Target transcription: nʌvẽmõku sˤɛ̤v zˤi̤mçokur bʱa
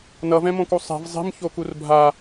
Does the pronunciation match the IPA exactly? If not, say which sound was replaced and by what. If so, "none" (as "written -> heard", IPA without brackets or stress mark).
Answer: ẽ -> ɛ̃